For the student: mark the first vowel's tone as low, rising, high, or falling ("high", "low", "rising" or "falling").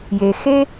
low